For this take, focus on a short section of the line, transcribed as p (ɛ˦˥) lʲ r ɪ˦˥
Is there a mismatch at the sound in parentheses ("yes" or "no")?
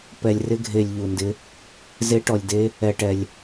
yes